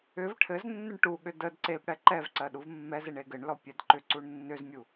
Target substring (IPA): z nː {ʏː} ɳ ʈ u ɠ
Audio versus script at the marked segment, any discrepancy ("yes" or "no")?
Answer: yes